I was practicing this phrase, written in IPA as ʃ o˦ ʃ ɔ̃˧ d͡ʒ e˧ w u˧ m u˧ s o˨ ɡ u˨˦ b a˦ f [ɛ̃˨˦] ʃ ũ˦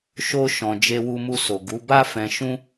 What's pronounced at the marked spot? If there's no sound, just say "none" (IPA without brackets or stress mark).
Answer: ɛ̃˧